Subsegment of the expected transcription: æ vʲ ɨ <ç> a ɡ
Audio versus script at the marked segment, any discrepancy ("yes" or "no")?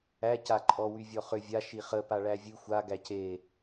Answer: yes